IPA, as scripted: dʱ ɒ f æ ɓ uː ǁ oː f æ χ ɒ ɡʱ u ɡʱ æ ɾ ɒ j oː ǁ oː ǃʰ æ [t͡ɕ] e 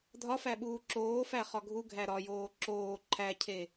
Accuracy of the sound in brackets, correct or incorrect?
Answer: incorrect